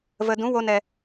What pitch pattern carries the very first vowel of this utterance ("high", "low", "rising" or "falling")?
low